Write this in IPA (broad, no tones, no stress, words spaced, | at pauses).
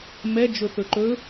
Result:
mɛ d͡ʒɵθɵǃɵ